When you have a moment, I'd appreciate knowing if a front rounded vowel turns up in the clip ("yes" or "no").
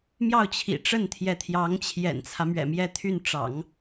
yes